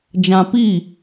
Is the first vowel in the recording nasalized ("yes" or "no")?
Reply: yes